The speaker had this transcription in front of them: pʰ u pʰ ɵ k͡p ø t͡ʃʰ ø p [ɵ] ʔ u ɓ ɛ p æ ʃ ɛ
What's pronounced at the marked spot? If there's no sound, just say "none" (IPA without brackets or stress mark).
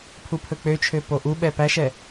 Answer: o